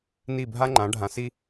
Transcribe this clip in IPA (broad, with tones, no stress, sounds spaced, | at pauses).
n i˥˩ bʱ a˥ ŋ͡ǃ ã˩˥ ɖʱ ã˩˥ s i˥